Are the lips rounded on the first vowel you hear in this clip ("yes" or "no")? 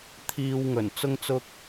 no